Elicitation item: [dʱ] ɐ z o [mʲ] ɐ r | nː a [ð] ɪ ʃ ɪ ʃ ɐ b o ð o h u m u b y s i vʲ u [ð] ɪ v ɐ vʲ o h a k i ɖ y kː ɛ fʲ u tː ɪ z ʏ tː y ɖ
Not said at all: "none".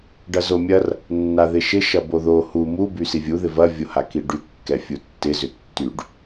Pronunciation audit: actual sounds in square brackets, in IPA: ɖ, mʲ, ð, ð

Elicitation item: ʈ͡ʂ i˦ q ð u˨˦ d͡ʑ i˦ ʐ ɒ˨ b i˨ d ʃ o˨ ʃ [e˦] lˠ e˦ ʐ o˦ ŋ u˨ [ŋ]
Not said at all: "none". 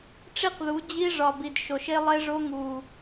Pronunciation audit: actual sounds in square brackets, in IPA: e˦, none

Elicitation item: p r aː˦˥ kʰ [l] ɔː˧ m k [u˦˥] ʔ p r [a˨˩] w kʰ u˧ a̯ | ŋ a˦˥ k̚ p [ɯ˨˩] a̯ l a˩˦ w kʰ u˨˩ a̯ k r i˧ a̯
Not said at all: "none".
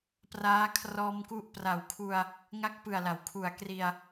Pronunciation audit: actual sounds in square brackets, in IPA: r, u˦˥, a˨˩, ɯ˨˩

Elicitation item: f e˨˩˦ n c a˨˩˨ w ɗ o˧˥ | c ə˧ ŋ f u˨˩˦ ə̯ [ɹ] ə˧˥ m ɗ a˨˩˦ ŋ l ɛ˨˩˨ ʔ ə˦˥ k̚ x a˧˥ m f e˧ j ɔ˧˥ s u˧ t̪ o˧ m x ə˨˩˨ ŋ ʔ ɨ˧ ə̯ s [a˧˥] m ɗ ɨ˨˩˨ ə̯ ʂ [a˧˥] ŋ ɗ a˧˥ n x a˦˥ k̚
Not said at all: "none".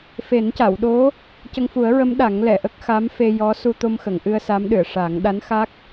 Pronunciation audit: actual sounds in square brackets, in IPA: ɹ, a˧˥, a˨˩˦

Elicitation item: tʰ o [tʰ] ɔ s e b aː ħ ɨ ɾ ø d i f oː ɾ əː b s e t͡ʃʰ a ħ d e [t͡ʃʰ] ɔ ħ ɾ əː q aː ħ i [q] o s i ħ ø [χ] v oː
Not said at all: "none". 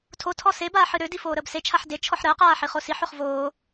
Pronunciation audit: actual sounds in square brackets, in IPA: tʰ, t͡ʃʰ, χ, χ

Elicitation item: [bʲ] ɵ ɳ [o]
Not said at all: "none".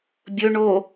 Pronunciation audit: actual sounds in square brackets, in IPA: bʲ, o

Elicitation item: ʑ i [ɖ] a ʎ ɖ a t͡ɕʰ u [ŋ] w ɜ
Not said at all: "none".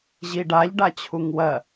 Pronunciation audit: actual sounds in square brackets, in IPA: ɖ, ŋ

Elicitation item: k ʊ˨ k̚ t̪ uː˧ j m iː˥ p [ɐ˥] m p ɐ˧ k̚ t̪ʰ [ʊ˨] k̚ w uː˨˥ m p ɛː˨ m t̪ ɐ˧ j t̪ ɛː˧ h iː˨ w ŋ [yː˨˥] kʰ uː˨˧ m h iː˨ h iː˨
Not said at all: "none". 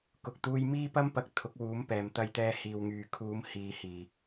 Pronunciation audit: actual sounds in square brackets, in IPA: ɐ˥, ʊ˨˥, yː˨

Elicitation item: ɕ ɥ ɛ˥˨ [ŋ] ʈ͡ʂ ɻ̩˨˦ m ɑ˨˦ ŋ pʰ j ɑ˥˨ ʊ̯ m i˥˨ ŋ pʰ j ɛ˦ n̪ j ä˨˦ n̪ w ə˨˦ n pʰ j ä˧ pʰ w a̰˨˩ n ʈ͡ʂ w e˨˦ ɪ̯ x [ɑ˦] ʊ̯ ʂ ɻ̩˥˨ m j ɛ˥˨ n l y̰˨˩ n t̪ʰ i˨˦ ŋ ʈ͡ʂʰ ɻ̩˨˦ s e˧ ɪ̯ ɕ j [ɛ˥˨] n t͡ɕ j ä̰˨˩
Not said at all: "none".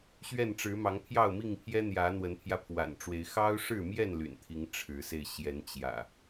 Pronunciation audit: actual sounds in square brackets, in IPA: n, ɑ˦, ɛ˨˦

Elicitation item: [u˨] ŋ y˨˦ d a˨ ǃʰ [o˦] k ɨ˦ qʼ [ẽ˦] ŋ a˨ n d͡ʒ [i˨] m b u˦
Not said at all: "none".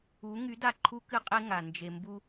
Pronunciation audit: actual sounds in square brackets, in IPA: u˨˦, u˦, e˦, e˨

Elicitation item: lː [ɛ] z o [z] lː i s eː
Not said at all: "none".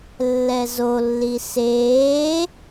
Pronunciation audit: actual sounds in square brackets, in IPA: ɛ, none

